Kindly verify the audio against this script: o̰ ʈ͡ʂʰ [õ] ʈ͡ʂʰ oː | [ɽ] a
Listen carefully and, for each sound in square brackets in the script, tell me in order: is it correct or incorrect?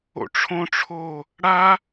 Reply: correct, correct

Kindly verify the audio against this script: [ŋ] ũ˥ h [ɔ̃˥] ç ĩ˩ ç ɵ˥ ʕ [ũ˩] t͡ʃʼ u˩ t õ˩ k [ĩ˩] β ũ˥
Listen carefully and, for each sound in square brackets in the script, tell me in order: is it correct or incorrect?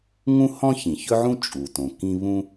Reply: correct, correct, incorrect: ũ˥, incorrect: ĩ˥

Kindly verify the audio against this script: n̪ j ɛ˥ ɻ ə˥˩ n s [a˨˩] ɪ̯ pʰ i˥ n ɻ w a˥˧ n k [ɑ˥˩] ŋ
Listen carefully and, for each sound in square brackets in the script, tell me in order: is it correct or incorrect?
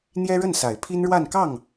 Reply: correct, correct

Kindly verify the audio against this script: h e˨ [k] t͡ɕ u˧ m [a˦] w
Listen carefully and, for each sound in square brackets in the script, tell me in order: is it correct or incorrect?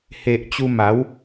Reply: incorrect: ʔ, incorrect: a˨˦

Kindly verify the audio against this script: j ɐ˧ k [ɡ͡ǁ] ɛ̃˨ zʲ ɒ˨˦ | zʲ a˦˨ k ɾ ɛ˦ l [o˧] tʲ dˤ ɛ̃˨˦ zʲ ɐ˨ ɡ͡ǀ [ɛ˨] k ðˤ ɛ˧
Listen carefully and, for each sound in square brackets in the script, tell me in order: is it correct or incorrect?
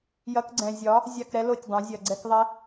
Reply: incorrect: ɡ͡ǀ, incorrect: o˦˨, incorrect: ɛ˦

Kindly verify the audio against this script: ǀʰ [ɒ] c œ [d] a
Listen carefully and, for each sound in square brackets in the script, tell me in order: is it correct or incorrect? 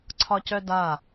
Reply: correct, correct

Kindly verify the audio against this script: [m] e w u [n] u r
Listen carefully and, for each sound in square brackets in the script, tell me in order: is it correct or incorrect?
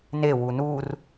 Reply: incorrect: n, correct

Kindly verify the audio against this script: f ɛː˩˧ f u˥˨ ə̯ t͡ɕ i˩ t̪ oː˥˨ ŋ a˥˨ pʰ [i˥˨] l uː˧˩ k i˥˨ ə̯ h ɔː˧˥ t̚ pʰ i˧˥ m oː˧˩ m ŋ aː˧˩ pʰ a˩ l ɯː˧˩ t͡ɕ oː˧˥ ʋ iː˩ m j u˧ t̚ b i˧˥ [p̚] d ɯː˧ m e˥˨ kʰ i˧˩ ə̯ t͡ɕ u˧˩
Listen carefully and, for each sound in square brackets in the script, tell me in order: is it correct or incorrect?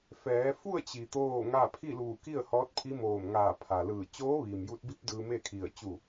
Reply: correct, correct

